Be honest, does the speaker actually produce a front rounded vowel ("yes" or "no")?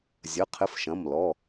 no